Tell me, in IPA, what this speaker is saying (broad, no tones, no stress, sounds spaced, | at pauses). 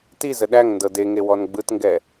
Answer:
t i z ə ɗ æ ŋ n d ɤ d e ŋ e w ɔ n ɡ͡b ɯ t ŋ ɡ ɛ